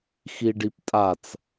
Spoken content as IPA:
x i ɖ i p tʼ a t͡s

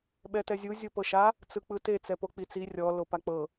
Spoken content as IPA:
ɓ ɛ t ɛ zʲ u zʲ o p ɤ ʃ a | t͡s ɯ k͡p ɯ t e t͡s ɛ p o k͡p i t͡s i rʲ ɔ l o p a k͡p ɤ

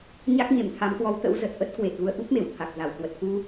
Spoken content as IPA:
ɲ a˦˥ k̚ ɲ e˧˩ m t̪ʰ a˨˦ m k w ɔ˨˦ w t̪ ə̰˧˥ w z ə˨˩ t̚ ʔ ə˦˥ t̚ k w e˨˩ t̚ ɣ u˧ ə̯ ʔ u˦˥ p̚ m e˧˩ w t̪ʰ a˨˩ k̚ z a˧˩ w k w ə˨˩ t̚ k u˧

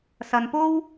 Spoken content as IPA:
s ɐ˨ n p o˥ w

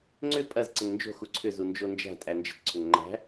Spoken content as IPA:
ŋ͡ǀ ʏ pʼ ɐ z ǀ ə ŋ n d͡ʒ o̤ x u ǀʰ ʏ z u n d͡ʒ o n d͡ʒ æ̤ tʼ æ n d͡ʒ ə̤ t ǀʰ ʏ ŋ ŋ͡ǃ æ̤

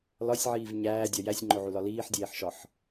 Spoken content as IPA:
l ɒ sʲ ʕ iː v ɲ æː dʲ ɒ j æ sʲ ŋ͡ǃ o ʕ u l ɒ l iː ħ dʲ eː ħ ʃ ɒ ħ

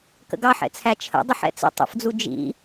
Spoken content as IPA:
k ə̰ ɡ ɑ ħ ɛ̰ t͡sʰ æ t͡ʃʰ ə̰ dˤ ʊ ħ ɛ̰ t͡s ə̰ tˤ ə̰ f d͡z u d͡ʒ ḭ

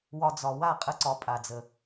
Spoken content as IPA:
w ɒ˧ d͡z ɒ˨ w a˦˨ qʼ ə˧ ǀ ɒ˨˦ pʼ a˨ d͡z ə˨

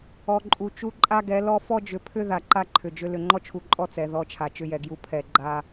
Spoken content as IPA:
ɔ˨ ǃʼ u˨ t͡ʃ u˦ ǃʼ a˦ ɡ ɛ˨˦ l ɔ˦ f ɔ˦ d͡ʒ ʏ˨˦ pʰ ʏ˦ ð a˨ ǃ a˦ ǃʰ ʏ˨ d͡ʒ ʏ˦ l ʏ˨ ŋ͡ǃ ɔ˦ t͡ʃʰ u˨ ǃʼ ɔ˦˨ t͡s ɛ˨ ð ɔ˦˨ t͡ʃʰ a˨ t͡ʃ ʏ˦ j ɛ˨ ɡ j u˦ pʰ ɛ˨ ɡ͡ǃ a˦

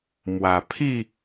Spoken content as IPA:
m w a˨˩ pʰ i˥˧

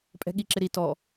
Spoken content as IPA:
pʼ ɛ̤ ɠ i ǁ ɪ ɾ i t ɔ

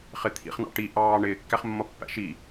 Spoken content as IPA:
χ ɪ t̪ʰ ḭ χ n ɑ̰ ʈ i ʔ ɑː ɳ ɪː kː æ χ mː ʌ pː æ̰ ʃ i

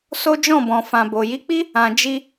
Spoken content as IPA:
s o˦ d͡ʒ ɔ̃˦˨ b ɔ̃˨ f ã˨ b o˨ j i˨˦ k͡p i˦ | ã˨ d͡ʒ i˧

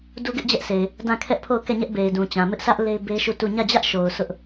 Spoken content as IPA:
d u˦ ɡ ɪ˦ ʔ d͡ʑ ɛ˦ ʔ sʰ e˨ ɪ̯ | d ã˦˨ kʰ ɛ˦ ʔ pʰ o˦˨ ʊ̯ k ɛ˦˨ ɲ ɛ˦ ʔ b e˨ ɪ̯ d ũ˨ t͡ɕ ã˨ m ɪ˦ ʔ sʰ ä˦ ʔ l e˦ ɪ̯ b e˦ ʃ u˦˨ t u˦˨ ɲ ä˦˨ d͡ʑ ä˦ ʔ ʃ o˨ ʊ̯ sʰ ʊ˦ ʔ

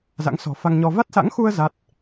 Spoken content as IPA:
z a̰˧˥ ŋ s ɔ̤˨˩ f a˧ ŋ ɲ ɔ˧ v a˦˥ t̚ s a̰˧˥ ŋ x u˧ ə̯ z a˦˥ t̚

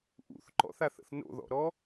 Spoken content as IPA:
ʔ ṵ θ ǃ ɔ̰ θ a θ ə̰ θ n o̰ ð ɔ̰ ɾ ɔ

